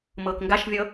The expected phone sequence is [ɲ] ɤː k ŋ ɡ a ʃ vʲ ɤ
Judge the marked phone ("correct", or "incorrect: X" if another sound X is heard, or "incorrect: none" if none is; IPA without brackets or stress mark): incorrect: m